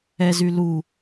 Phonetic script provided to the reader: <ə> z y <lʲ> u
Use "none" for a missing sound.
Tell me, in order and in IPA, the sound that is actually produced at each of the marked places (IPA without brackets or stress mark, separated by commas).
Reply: ɛ, l